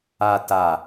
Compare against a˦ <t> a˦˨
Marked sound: correct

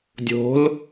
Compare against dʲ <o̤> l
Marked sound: correct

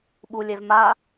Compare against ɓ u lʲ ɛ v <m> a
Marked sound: correct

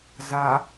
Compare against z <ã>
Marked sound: incorrect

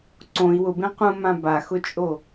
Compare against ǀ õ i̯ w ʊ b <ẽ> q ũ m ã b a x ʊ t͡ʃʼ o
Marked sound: correct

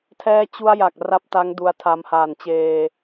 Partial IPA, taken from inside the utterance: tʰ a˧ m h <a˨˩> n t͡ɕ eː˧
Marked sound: incorrect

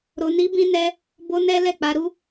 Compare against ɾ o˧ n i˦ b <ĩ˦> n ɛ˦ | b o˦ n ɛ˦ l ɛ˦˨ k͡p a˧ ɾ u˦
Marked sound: correct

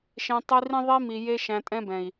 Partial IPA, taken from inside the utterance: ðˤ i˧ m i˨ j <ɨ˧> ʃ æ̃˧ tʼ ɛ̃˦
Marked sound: incorrect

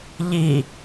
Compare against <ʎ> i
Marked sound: correct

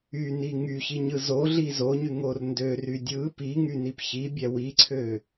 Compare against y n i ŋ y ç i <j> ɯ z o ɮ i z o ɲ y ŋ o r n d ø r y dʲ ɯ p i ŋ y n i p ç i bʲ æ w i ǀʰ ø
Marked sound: incorrect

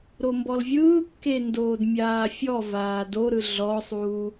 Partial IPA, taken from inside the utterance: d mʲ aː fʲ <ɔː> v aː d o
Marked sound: incorrect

